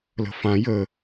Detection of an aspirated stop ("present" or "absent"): absent